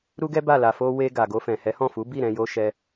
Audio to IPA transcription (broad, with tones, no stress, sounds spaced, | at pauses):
ɾ u˦ ɡ ɛ˦ b a˦˨ l a˨ f o˧ w e˧ ɡ a˨ ɡ o˧ f ɛ̃˨ h ɛ˨˦ h ɔ̃˦˨ f u˨˦ b i˦˨ ɾ ɛ̃˧ j o˧ ʃ ɛ˧